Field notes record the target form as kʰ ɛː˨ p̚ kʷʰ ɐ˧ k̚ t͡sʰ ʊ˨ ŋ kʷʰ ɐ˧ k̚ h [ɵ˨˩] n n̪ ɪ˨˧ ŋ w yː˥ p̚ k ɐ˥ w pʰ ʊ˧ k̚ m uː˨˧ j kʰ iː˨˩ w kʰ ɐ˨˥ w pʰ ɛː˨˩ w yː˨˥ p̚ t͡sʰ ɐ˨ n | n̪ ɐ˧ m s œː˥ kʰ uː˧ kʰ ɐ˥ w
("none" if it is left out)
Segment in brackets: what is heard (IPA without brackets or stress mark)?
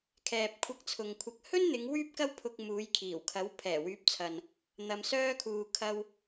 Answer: ɵ˥